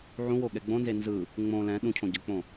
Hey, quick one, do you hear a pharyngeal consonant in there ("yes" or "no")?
yes